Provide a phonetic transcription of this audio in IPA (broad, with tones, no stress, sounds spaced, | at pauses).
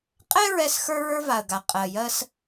qʼ ɛ˥ ɹ ɛ˧ s x ə˞˧ ɹ ə˞˧ v a˩ ə̯ ɡ a˩ qʼ ɜ˩ j ɜ˧ s